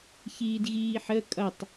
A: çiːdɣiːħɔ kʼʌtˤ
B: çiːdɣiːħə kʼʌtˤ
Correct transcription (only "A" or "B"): B